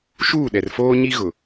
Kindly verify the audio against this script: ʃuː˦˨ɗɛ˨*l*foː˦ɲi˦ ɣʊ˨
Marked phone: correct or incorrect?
incorrect